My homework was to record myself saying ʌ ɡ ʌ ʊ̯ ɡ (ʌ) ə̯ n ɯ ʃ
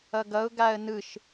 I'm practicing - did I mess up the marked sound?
yes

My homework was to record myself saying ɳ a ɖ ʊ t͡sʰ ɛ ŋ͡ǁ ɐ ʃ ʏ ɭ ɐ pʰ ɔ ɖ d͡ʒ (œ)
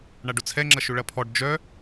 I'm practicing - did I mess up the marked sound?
no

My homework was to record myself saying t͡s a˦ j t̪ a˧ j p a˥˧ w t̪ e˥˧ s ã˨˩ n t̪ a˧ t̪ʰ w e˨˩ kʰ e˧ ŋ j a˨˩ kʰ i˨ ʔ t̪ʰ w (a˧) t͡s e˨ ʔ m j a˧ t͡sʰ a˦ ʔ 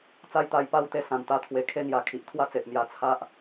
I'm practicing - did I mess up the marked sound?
yes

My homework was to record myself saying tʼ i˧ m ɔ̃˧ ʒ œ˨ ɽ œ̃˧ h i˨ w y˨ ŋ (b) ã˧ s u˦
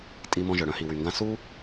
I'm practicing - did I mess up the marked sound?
yes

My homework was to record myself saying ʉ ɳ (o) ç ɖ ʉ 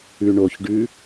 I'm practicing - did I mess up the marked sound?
no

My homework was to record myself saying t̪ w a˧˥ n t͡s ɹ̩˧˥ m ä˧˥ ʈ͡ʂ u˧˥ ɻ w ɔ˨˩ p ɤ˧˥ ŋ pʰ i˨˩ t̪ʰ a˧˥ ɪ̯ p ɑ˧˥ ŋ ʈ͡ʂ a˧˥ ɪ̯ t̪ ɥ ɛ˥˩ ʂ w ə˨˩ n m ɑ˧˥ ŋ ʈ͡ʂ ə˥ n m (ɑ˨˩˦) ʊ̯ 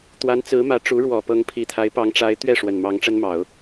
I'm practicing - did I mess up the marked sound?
no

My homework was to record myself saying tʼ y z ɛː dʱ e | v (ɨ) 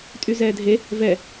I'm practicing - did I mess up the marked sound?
yes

